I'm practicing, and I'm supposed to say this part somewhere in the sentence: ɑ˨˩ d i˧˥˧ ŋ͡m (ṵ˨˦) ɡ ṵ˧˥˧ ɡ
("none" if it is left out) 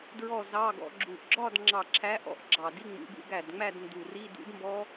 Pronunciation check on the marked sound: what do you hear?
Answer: ṵ˨˦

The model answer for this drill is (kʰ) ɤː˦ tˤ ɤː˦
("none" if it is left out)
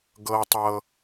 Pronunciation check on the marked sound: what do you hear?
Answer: ɡ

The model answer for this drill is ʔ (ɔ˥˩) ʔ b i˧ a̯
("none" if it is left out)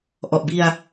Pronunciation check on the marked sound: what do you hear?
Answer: ɔ˨˩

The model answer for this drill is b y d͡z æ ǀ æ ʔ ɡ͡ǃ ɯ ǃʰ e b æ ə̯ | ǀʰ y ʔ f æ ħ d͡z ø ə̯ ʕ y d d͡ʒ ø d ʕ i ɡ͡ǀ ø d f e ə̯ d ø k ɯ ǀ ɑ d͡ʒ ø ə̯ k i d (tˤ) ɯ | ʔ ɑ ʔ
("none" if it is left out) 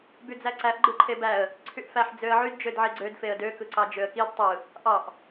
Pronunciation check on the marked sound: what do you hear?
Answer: tˤ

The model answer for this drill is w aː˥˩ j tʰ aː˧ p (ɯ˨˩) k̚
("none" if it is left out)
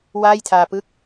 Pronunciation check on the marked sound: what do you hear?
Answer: ɯ˥˩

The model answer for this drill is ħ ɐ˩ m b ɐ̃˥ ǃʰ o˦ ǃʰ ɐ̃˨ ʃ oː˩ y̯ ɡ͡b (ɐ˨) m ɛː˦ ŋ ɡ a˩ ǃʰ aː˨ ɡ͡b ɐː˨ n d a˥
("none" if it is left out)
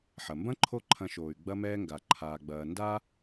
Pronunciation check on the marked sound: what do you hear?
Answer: ɐ˦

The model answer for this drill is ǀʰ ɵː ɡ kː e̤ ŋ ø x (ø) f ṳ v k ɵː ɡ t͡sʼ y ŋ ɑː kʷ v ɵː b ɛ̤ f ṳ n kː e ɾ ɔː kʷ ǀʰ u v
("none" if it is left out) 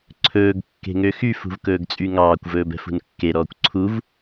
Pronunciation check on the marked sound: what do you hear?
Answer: y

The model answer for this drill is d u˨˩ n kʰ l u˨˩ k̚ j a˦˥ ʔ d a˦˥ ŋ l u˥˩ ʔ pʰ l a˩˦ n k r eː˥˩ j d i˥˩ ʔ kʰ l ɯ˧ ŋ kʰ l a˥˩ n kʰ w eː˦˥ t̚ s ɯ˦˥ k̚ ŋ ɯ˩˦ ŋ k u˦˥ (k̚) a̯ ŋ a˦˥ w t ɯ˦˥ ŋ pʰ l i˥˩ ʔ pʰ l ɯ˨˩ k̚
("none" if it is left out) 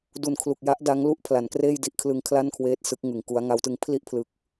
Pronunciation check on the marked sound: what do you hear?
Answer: none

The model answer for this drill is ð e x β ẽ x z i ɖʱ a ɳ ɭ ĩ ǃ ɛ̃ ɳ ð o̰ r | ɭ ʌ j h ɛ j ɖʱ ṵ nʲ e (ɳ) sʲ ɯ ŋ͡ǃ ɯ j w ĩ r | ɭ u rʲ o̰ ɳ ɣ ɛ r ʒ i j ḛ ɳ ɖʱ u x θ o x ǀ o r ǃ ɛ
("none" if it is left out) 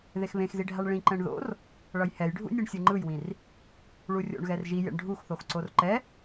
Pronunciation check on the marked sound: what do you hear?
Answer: ɳ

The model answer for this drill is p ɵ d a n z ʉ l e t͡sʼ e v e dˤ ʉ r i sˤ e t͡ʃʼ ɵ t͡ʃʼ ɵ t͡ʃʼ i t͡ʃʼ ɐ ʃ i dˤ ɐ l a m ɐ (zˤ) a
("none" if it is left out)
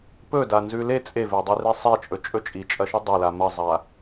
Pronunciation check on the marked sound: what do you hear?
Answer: zˤ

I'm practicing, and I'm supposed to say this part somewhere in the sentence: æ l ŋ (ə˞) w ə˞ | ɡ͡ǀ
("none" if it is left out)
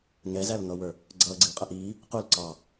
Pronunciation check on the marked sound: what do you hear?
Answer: ʌ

